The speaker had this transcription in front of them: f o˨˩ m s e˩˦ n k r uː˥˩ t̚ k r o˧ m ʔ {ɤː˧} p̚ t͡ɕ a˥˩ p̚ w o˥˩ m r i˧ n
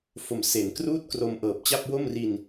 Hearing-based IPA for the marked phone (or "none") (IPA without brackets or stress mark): ɤː˨˩